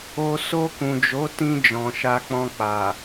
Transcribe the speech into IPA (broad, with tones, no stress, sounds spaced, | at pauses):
o˦ s o˧ k ũ˨ d͡ʒ o˨˦ t ĩ˧ d͡ʒ ɔ̃˨ ʃ a˧ k͡p ɔ̃˧ k͡p a˨